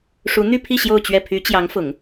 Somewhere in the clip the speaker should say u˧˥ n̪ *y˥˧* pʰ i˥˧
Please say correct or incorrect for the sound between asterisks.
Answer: correct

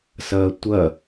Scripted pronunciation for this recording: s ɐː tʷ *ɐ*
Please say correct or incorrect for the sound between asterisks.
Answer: correct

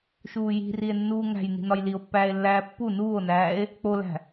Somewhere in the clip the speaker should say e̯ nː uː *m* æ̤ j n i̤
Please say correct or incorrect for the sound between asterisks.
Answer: incorrect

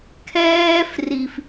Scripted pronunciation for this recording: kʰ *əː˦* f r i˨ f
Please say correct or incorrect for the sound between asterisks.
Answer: incorrect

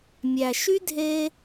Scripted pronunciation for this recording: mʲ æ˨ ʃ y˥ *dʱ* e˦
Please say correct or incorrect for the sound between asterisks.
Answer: correct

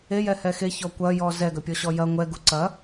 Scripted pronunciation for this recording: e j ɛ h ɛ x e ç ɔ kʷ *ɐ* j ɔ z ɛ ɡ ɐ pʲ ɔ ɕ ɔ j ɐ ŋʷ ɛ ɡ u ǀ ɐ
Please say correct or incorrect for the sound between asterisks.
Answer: correct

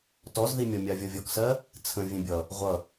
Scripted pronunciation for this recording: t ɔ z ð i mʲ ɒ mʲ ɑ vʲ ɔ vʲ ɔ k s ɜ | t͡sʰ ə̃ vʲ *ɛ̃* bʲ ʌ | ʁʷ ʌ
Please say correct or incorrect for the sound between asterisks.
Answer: correct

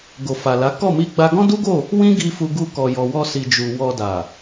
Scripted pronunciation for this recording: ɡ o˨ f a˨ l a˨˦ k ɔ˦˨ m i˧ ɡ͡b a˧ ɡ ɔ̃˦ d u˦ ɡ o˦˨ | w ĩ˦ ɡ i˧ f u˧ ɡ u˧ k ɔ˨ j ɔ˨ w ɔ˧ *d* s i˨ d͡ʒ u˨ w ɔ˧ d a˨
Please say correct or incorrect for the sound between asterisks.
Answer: incorrect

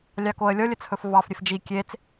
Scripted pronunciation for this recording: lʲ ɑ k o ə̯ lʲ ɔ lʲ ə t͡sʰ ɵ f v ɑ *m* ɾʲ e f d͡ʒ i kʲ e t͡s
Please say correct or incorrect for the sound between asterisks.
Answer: incorrect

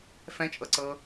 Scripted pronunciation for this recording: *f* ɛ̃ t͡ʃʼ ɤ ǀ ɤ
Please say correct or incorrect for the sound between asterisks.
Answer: correct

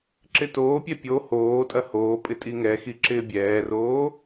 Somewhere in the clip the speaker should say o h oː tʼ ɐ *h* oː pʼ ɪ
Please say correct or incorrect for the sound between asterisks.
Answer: correct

